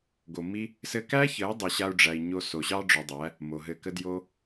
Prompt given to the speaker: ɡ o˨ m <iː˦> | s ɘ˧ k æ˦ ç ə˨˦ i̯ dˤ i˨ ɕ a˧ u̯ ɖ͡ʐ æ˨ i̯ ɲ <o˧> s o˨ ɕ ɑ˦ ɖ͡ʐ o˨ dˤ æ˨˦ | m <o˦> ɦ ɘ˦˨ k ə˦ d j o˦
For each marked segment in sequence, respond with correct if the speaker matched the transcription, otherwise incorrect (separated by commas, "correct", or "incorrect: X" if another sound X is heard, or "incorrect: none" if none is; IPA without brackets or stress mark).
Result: incorrect: i˦, correct, incorrect: o˨